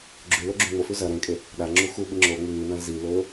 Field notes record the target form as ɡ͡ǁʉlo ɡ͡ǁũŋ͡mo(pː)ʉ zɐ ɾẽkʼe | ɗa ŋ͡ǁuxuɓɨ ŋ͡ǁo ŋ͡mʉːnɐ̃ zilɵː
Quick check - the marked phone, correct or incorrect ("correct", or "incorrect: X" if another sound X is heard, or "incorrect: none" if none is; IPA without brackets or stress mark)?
incorrect: f